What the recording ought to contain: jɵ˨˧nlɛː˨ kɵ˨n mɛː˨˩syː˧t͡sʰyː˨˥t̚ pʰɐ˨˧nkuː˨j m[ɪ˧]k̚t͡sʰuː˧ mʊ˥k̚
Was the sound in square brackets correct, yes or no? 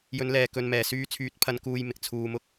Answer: no